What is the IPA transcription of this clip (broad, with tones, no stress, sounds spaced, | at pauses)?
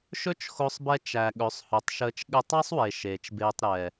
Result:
ʃ ɵ˦ t͡ʃ x o˧ sˤ b ɛ˧ t͡ʃ æ˨ ɠ ɵ˨˦ sˤ h ɵ˨˦ tˤ ʃ əː˧ t͡ʃ ɠ ɘ˧ tˤ æ˦ sˤ w e˨ ʃ eː˨ t͡ʃ b eː˧ tˤ ɾ ɛ˨